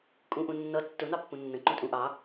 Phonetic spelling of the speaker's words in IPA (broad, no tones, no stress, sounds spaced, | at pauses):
kʼ ũ ʔ ũ nː ʌ tː ʊ n̪ ɑ pː ũ nː ə̃ ǃ ũ tʼ ũ ʔ ɑ